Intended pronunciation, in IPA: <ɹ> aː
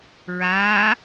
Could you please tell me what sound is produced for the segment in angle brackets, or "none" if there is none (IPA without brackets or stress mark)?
ɹ